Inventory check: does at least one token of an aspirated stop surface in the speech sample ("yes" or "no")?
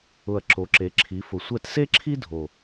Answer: yes